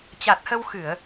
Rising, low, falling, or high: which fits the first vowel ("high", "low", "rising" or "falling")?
low